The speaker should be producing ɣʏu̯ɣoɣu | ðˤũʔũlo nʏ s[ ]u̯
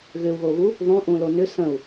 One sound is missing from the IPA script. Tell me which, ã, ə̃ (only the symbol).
ə̃